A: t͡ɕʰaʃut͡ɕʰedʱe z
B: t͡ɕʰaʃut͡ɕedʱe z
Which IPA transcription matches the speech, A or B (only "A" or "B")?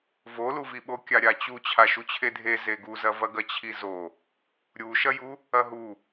A